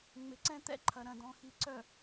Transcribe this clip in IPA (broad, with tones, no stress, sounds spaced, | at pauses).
ŋ͡m ɪ˨ ǀ ɛ̃˦ t̪ ɛ̰˦ ǃʰ ɐ˨ ɾ ɐ̃˨ d ɔ̃˨ x i˨ ǀ œ˨